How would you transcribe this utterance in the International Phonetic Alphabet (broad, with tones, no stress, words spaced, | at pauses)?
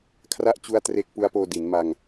kʰra˥˩ʔt͡ɕu˦˥a̯ tre˦˥k̚pu˦˥a̯poː˧ di˩˦nma˧ŋ